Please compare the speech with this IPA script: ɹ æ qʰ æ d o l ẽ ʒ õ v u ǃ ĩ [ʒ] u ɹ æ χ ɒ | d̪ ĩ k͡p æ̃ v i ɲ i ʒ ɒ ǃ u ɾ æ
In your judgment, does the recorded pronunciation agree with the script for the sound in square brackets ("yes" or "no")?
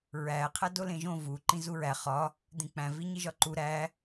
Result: no